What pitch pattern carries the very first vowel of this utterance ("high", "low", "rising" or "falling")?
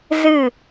falling